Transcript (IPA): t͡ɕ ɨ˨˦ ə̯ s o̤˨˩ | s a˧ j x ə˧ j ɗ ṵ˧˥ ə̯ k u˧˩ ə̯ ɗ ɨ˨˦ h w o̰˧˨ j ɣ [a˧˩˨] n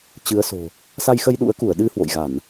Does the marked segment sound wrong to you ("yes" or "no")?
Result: no